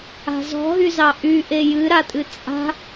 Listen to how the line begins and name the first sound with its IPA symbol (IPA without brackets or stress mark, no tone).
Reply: a̤